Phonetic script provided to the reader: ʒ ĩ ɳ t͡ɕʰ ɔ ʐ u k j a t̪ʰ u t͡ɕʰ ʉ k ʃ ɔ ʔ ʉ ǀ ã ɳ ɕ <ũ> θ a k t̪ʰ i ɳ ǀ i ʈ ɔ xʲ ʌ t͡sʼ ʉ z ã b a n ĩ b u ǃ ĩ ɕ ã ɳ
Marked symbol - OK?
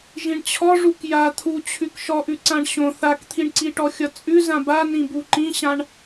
no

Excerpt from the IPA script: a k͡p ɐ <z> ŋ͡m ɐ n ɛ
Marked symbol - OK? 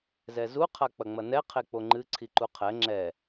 no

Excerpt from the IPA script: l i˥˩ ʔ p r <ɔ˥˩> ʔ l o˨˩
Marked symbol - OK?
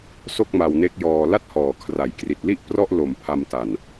yes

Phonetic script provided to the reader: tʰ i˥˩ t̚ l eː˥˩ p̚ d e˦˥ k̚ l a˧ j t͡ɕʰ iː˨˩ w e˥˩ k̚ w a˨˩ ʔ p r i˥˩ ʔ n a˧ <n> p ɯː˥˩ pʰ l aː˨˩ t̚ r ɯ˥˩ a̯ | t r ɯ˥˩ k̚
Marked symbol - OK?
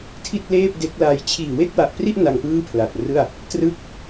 no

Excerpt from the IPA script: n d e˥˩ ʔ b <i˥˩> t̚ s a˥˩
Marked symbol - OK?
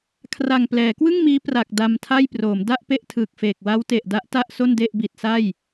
no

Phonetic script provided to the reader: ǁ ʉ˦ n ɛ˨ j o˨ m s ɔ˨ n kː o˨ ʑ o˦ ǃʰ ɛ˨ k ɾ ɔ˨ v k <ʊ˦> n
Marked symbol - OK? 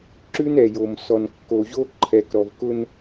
yes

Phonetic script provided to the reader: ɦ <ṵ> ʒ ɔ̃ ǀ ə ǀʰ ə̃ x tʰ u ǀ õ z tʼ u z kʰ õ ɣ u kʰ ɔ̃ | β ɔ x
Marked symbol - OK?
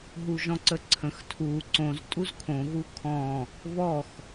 no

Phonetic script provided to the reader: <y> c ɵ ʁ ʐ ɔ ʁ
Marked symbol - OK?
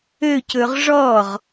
no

